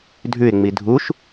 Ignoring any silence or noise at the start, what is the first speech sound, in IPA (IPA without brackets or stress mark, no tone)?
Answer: dʱ